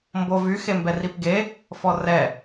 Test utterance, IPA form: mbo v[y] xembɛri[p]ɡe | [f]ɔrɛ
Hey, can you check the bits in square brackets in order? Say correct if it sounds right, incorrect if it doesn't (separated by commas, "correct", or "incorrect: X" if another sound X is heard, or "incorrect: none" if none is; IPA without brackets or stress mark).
correct, correct, correct